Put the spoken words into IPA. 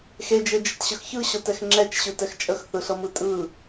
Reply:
xed͡ʒed͡ʒətɕəx çɯɕɤtɛx ŋ͡ǁɛt͡ʃɕɯtɛx t͡ʃʼəxθɯɬɤmɯ tʼɯ

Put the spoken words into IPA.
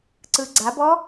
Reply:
ǀɯɡ͡ǀabɔ

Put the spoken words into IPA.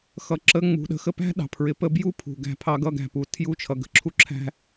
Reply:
xʌ˧˥ ǁə˧˥ ŋ͡mṳ˩˧ɗə̤˧˥ xə˧pæ̤˥ ɗɑ̤˩pʰɹɪ˧pə˥ bju˥ pʰṳ˩ɡæ̤˧pʰɑ˧ɡʌ˧ ɡæ̤˩pu˩˧tʰju˧˥ t͡ʃʰʌ˩ɡə̤˧˥ǁʰu˧ ǁʰæ̤˧

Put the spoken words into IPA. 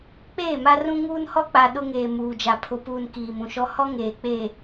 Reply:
k͡peː˦˨ma˦rũ˦ ŋuː˦nhɔ˦k͡pa˨ ɗʊ˦ŋeː˨ muː˨d͡ʒa˨pʰʊ˨puː˨n kiː˨mũ˨ʃɔ˦ hɔ˦ŋeː˨k͡peː˨

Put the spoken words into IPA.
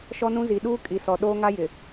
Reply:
ʃɔ˦nũ˦zi˨ ɗuː˦ kʼi˨sɔ˨ ɗoː˦ŋa˦ jɪ˨

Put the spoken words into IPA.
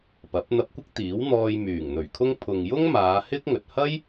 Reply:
pɐ˨˥p̚ n̪ɐ˧p̚kʷɪ˥k̚ t̪iː˨˥wn̪ɔː˧j myː˨˩ŋn̪ɵ˨˩ɥkʰʊ˥ŋ pʰʊ˨ŋjʊ˥ŋ maː˨˧hɪ˥k̚ŋɵ˨t̚ hɐ˥j

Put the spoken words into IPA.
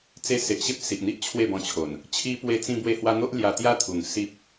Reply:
t͡se˧se˨ʔɕe˦p̚ si˨ʔn̪i˦ʔ t͡ɕʰwe˥˧bɔ̃˧t͡ɕʰo˨˩n | t͡ɕʰi˧pwe˧ t͡sĩ˧bwe˧hwa˧n̪o˦ʔ lja˧t̪ja˥˧t̪ʰu˨˩ŋ si˦p̚

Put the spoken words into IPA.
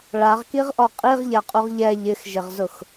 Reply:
ɭaʁkiʁʔɔ qʼiʁʎaqʼuʁ ʎɛ ʎɪxʒɪʁzʊx

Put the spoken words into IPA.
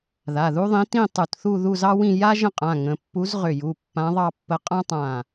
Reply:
ða˩˧˩ðu˥ðˤĩ˧˥ tĩ˥˧ tˤu˧˩tθu˥˧ ðu˥˧zɑ˥wĩ˥˧ ja˥ ʒə̃˥˧qʼã˩˧˩ ŋə̃˩˧˩pːu˧˥z ʁʏ˧˩ju˩˧˩ pːã˧˥ðˤɑ˥˧pːə˧˥ qʼã˥tˤã˧˩

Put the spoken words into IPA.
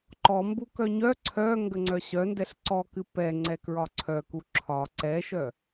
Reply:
ǃɔmbu kœɲœ ǀʰœ ŋɡəŋ͡ǀœɕœndɛɬ ǀɔkɨ pɛ ŋ͡ǀɛkɹɒǀʰœku ǁʰɒ ǀɛʃœ

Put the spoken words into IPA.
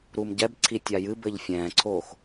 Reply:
ɾumɟɛbǀʰi tʲajɨbɘʎ fʲɛ̃ːǀʰoːx

